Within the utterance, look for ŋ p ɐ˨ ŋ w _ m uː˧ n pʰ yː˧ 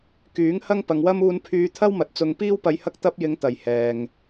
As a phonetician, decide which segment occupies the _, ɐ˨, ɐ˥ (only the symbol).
ɐ˥